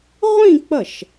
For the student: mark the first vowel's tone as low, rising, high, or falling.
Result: falling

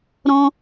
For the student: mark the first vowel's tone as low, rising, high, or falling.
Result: high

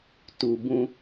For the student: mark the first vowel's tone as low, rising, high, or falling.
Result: low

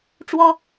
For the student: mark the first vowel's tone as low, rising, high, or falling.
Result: high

